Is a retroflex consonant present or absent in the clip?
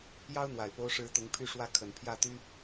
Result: present